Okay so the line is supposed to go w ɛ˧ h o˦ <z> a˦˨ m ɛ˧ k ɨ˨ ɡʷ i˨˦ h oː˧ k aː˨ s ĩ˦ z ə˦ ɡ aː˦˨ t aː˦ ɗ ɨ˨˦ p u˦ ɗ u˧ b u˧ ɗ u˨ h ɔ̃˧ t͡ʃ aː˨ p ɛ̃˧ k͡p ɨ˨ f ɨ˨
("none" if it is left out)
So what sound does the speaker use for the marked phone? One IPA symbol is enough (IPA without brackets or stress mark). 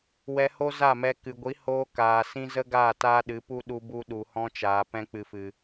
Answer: z